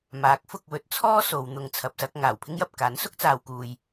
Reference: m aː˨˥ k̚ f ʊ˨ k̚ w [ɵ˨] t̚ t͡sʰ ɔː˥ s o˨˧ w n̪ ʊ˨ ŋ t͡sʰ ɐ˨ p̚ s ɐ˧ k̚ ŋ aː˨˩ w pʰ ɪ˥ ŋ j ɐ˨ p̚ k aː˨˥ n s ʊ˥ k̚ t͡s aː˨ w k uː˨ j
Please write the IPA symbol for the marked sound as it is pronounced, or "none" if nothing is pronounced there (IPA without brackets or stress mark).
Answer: ɵ˨˥